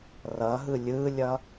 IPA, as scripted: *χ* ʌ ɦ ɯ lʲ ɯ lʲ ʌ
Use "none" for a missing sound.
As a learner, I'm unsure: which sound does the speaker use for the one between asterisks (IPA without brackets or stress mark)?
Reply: r